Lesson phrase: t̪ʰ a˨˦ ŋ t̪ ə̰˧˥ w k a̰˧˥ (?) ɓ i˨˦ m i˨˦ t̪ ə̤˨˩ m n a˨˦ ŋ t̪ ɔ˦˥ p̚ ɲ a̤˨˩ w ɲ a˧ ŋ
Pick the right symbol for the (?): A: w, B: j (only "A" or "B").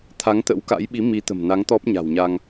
B